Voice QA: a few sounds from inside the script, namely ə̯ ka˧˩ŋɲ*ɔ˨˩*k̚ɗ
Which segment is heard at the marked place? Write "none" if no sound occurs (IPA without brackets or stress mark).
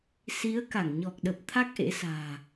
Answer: ɔ˨˩